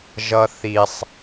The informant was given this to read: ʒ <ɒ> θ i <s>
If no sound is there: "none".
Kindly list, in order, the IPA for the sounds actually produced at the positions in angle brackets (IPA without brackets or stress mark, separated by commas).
ʌ, sˤ